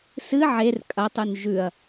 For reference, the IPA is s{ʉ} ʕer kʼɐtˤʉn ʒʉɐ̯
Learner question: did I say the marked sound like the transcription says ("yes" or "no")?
no